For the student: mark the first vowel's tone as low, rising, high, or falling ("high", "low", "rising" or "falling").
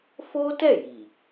high